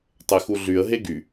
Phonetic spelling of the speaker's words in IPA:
tˤ e x u ɮ y ə̯ ɦ e ɡ y

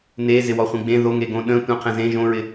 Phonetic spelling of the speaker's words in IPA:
n e z ɪ w ɔ χʷ ẽ ɡ͡b ẽ ð o ŋ e ɡ õ ɗ ə̃ tʷ ə̃ qʰ ə̃ z ẽ ʒ õ ɹ ɪ

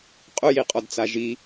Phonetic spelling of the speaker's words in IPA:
qʼ ʊ j i qʼ ɔ d t͡s a ʒ i

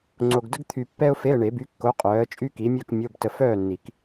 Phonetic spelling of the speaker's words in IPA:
ŋ͡ǀ o˧ ɡ d ə˥ ɡ t̪ʰ y˧ pː ɛ˥ ʊ̯ f e˧˥˧ ə̯ ɳ e˨˩˦ b y˨˥ kː o˨˥ qʼ œː˨˥ ə̯ t͡ʃʼ y˥ k i˨˥ mʲ œ˥˨ k mʲ o˧˥˧ b t ə˧ f œː˥˨ nː i˨˩˦ k

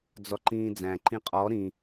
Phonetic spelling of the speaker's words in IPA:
d͡z ɔ ǃ ĩː d͡z æ̃ ǃ ĩ qʼ ɔ ɾ ĩ

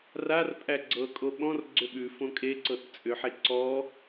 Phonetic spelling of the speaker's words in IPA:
r a r pʼ æ ɡ͡ǀ ɤ kʼ o ɓ ɔ̃ r ɡ͡ǀ ʏ ɓ ʉ f õ kʼ e ǀ ɤ t t͡sʼ ʏ ħ e ǀ ɔ

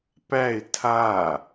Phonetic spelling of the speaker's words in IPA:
p æ ɪ̯ tʰ a

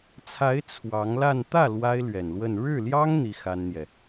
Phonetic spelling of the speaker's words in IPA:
t͡sʰ a˧˥ ɪ̯ t͡sʰ w ɑ˧˥ ŋ l a˥˧ n t̪ ä˥˩ l w a˥ ɪ̯ l ɥ ɛ˨˩ n l w ə˥˧ n ɻ ɻ̩˥˩ l j ɑ˥ ŋ n̪ i˥ x a˥ n n̪ j ɛ˨

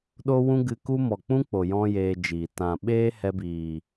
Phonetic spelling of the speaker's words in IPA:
ɗ o˦ w ũ˦ ɡ ɨ˧ k u˦ m ɔ˨ k͡p ũ˦ k͡p o˨ j ɔ̃˦ j eː˧ d͡ʒ iː˨ t ã˨ ɓ eː˦ h ɛ˧ b iː˨

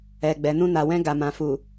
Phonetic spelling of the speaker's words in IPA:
ɛ˨ ɡ͡b ɛ˨ n ũ˧ n a˨ w ɛ̃˧ ɡ a˨ m ã˨ f u˨

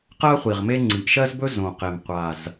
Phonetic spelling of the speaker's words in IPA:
q ɜ˥ χʷ i˨˩ ʁ m e˥ ŋ͡ǀ i˨˩ ʔ ʃ ɜ˥ z b ɵ˥ z õ˨˩ q e˨˩ m qʷ a˨˩ z

